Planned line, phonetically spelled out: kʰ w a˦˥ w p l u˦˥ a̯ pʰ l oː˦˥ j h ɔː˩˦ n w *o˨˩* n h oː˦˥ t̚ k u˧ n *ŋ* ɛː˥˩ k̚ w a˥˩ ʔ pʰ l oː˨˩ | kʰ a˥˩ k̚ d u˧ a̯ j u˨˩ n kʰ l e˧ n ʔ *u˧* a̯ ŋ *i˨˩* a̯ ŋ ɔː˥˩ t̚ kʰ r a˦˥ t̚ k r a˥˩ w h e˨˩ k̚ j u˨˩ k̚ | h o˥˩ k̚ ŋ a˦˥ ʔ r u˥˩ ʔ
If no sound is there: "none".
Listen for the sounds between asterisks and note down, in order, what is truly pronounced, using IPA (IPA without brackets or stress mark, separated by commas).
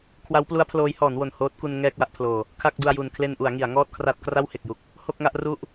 o˨˩, ŋ, u˩˦, i˩˦